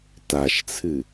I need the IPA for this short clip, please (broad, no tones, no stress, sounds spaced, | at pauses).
t a ʃ t͡sʰ ɨ